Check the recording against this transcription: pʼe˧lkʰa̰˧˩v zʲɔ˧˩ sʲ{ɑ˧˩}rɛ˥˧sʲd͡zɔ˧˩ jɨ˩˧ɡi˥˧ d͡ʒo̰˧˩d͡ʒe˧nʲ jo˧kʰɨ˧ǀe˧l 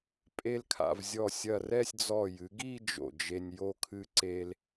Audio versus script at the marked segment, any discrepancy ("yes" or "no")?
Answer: yes